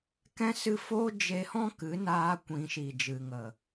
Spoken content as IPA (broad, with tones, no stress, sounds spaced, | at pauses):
k ɛ̃˦ s ɨ˦ f oː˦ d͡ʒ e˧ h ɔ̃˦ k ɨ˨˦ n aː˧ kʷ ĩ˨˦ ʃ i˨ d͡ʒ ɨ˨ ŋ ə˨